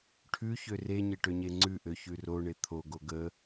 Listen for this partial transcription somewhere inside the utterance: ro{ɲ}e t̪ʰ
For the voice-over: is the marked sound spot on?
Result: no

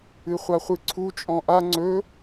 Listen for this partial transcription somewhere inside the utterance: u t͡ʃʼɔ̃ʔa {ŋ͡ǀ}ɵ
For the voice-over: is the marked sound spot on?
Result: yes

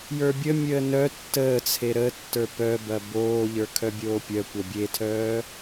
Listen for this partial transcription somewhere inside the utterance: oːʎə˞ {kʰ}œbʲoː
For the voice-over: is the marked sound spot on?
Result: yes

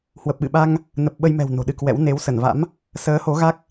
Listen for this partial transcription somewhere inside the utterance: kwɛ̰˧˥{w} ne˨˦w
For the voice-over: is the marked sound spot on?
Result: yes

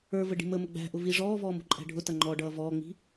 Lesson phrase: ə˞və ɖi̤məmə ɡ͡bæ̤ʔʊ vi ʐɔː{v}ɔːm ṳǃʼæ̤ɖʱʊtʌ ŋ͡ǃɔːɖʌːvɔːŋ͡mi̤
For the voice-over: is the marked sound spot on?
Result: yes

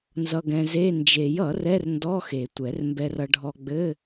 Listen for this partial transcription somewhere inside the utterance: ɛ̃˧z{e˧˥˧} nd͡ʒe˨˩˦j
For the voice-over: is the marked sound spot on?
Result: yes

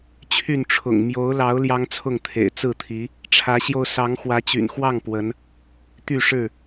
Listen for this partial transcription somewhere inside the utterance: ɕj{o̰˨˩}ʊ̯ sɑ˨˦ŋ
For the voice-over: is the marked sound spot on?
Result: no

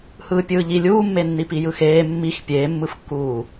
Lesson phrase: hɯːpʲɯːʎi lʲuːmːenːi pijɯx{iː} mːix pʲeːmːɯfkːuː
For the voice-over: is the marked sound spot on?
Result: no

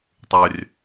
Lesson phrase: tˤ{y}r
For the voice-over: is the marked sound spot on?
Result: yes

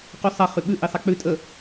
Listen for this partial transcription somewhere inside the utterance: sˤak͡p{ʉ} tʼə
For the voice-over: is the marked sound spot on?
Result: yes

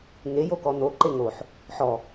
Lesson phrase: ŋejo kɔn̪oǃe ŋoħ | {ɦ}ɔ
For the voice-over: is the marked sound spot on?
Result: no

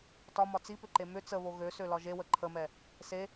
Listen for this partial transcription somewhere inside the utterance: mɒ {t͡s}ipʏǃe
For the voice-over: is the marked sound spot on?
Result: yes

